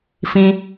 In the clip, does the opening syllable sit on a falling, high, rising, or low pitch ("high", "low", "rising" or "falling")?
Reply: high